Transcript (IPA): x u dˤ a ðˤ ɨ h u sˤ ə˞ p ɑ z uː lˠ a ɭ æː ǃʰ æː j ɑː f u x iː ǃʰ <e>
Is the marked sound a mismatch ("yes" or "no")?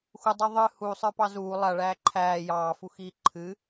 yes